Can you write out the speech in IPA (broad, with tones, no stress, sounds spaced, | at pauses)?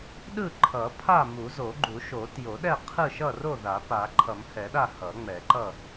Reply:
ɗ ɯ˥˨ ǃʰ ʌ˨˩˦ pʰ a˥˨ m u˨˩˦ z o˨˩˦ ɡ͡ǃ u˨˩˦ ʃ o˨˩˦ t j o˨˩˦ ɗ ɛ˥˨ qʰ ɯ˥˨ ʃ ʌ˥˨ r o˥˨ ð a˨˩˦ p a˨˩˦ ǃʰ ʌ˨˩˦ m h ɛ˨˩˦ ɗ a˥˨ h ʌ˨˩˦ ŋ͡m ɛ˨˩˦ ǃ ʌ˥˨